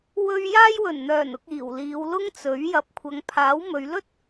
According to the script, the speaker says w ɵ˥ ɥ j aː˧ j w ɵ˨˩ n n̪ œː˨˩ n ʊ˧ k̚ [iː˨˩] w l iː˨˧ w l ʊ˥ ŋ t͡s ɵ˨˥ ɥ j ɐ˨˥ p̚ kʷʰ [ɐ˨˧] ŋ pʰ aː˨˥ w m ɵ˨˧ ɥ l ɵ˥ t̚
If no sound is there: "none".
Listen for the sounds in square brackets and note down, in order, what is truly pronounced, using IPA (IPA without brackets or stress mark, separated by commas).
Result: iː˨˩, ɐ˨˧